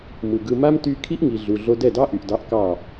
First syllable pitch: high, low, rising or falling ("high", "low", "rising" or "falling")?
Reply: low